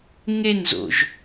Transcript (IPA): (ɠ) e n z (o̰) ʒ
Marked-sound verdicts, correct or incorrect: incorrect, correct

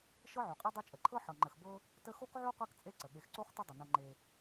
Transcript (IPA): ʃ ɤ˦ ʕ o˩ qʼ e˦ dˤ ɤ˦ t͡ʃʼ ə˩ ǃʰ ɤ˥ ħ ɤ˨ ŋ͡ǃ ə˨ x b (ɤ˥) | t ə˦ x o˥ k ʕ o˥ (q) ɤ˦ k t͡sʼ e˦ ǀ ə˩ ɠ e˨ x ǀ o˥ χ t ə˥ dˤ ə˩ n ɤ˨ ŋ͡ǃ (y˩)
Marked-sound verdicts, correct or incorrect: correct, correct, incorrect

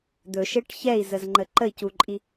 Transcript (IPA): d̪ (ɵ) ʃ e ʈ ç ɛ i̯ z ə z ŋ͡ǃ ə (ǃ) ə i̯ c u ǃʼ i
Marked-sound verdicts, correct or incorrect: correct, correct

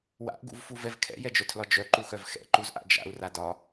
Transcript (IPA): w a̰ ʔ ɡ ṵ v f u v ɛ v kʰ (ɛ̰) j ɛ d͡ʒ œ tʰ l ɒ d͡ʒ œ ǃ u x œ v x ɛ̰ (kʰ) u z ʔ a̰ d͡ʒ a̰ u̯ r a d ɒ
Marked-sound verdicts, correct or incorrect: correct, incorrect

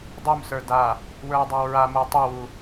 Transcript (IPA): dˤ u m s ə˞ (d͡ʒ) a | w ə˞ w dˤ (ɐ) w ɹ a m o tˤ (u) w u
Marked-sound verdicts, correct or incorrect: incorrect, incorrect, correct

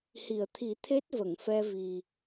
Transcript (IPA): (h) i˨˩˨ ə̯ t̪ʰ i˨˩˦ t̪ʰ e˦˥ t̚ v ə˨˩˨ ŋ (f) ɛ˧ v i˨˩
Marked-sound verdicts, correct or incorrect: correct, correct

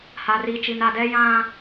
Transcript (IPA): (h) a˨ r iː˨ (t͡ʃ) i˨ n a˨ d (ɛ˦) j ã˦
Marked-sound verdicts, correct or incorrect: correct, correct, correct

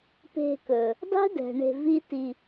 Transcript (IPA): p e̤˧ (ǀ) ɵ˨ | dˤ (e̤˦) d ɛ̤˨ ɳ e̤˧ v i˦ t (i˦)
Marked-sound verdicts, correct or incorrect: incorrect, correct, incorrect

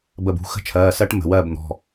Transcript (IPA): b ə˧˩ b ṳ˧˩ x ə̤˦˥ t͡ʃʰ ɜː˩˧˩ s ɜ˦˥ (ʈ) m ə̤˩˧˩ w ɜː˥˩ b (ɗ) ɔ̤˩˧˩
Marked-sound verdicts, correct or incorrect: correct, incorrect

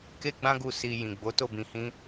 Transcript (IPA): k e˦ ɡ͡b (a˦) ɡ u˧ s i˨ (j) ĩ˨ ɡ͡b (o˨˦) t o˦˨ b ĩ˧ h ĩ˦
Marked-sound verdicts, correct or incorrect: incorrect, correct, correct

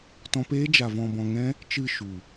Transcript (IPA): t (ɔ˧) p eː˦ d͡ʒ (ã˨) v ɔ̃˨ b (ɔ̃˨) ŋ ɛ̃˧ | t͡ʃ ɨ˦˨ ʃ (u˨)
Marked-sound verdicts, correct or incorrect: incorrect, incorrect, correct, correct

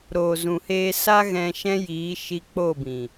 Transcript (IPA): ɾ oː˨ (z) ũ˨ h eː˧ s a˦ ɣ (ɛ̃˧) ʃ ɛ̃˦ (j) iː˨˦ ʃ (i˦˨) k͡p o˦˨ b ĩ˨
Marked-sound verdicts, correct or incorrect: correct, correct, correct, incorrect

